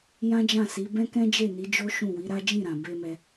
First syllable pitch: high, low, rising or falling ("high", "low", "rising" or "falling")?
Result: high